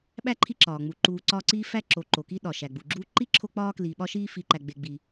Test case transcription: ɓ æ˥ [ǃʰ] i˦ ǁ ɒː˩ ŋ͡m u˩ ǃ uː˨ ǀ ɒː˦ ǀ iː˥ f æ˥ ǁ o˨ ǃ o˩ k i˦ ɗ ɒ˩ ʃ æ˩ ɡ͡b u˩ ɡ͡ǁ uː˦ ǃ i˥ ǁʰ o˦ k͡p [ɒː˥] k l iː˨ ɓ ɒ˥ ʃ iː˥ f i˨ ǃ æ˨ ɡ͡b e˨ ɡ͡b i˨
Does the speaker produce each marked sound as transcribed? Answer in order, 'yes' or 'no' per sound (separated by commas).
yes, yes